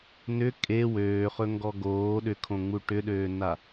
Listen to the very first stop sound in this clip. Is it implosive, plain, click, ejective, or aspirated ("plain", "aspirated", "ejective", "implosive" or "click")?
ejective